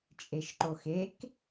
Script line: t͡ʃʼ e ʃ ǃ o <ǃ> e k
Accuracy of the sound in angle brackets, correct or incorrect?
incorrect: x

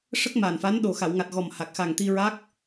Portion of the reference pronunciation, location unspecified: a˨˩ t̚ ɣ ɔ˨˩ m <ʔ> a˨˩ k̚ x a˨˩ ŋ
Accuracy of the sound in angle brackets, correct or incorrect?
incorrect: h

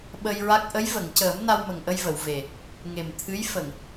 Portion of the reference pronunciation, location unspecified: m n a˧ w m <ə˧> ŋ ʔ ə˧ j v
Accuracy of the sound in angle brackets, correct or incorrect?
incorrect: ə˨˩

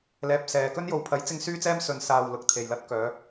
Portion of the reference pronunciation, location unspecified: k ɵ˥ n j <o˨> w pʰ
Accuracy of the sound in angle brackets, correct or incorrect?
correct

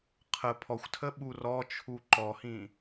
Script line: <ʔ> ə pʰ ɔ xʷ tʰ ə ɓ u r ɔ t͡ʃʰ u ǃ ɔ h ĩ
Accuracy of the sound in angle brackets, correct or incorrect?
incorrect: qʰ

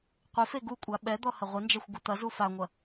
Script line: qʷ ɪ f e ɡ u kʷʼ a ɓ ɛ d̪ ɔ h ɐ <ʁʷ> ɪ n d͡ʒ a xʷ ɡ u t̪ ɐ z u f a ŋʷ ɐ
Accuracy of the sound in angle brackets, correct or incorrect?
correct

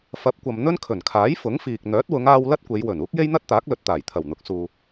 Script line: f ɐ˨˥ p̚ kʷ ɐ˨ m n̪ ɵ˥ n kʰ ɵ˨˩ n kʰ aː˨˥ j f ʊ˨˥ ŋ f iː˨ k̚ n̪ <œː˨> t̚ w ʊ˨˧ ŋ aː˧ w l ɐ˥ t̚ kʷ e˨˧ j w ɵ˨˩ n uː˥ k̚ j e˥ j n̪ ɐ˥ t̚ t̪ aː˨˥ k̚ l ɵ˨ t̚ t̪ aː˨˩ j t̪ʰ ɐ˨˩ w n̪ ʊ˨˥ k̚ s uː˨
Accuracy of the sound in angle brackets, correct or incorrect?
incorrect: œː˨˥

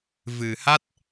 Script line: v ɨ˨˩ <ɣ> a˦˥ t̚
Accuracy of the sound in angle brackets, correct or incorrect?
incorrect: h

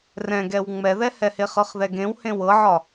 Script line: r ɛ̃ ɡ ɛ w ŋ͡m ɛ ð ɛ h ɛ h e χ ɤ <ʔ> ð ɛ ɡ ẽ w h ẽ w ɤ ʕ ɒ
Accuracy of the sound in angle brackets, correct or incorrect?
incorrect: χ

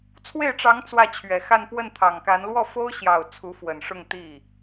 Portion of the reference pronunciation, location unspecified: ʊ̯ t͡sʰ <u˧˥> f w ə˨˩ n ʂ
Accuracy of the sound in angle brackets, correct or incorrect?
correct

